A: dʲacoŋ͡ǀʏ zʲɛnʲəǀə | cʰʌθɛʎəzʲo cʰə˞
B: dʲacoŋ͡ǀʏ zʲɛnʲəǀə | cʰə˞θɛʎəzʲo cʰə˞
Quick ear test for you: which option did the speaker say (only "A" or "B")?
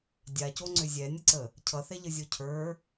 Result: A